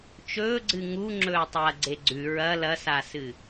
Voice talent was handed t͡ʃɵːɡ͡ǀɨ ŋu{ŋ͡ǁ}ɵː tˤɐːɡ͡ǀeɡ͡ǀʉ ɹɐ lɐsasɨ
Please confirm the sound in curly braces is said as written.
yes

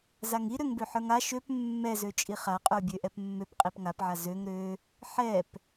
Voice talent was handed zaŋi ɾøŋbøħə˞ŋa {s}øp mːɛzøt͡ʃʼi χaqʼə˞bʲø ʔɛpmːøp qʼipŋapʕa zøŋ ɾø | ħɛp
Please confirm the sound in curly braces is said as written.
no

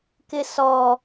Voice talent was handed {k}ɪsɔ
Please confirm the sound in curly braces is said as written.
yes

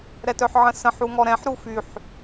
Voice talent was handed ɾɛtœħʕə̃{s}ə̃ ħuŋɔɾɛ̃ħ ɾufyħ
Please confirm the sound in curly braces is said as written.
yes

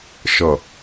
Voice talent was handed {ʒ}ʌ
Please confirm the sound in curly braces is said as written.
no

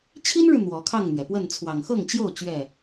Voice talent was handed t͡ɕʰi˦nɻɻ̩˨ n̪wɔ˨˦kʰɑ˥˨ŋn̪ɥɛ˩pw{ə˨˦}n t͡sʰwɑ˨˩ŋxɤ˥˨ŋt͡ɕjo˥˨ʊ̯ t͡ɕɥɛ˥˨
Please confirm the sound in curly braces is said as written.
no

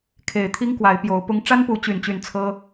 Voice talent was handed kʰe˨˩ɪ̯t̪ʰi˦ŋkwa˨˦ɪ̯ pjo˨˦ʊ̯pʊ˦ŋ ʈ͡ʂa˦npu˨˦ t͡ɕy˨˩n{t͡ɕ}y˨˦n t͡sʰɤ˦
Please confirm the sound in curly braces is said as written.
yes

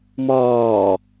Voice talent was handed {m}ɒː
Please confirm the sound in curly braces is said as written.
yes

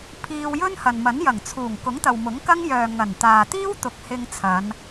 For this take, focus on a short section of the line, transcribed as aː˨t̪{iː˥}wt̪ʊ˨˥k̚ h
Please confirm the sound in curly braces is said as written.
yes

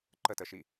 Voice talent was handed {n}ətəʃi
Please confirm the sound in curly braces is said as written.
no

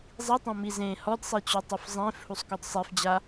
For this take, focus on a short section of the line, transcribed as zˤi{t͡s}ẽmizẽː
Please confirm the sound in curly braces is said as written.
no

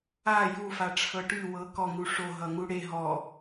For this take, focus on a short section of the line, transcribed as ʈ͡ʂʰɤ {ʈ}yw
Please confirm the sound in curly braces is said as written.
yes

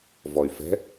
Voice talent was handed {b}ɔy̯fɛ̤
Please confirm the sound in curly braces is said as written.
no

